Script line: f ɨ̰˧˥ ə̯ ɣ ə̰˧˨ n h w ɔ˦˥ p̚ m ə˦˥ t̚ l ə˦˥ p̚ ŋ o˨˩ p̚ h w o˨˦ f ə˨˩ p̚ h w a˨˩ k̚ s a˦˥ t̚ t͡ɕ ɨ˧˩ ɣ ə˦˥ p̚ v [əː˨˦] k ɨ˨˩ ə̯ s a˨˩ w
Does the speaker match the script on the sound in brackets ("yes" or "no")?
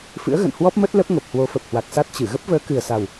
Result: yes